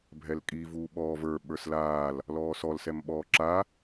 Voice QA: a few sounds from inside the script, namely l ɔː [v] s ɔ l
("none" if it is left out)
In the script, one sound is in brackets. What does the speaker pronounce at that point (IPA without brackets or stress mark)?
none